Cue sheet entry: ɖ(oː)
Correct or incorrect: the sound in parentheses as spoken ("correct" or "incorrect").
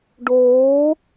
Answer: correct